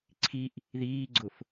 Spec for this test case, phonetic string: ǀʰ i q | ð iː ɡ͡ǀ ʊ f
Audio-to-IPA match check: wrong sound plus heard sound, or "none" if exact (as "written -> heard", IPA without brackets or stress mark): q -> ʔ